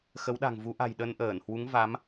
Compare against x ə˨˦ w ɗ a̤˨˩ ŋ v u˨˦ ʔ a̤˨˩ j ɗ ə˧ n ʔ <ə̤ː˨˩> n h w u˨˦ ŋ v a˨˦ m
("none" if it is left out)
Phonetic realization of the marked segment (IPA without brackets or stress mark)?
əː˧˩